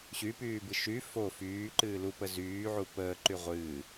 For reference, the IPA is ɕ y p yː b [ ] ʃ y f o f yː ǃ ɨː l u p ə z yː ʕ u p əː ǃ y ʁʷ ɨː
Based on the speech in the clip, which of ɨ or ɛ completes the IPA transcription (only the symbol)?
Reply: ɨ